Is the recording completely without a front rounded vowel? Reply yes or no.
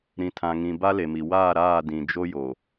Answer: yes